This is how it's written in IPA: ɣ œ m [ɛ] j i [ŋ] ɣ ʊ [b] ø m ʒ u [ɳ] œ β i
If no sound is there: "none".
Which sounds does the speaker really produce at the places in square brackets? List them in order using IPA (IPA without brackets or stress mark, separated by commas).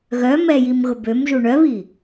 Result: ɛ, m, b, ɳ